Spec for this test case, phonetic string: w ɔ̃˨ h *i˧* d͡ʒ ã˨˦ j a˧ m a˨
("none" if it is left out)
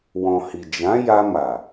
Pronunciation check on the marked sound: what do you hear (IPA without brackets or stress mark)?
i˨